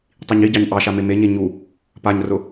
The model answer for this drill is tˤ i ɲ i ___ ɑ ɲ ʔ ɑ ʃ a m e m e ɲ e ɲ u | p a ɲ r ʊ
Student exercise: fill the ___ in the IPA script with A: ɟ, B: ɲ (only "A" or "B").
A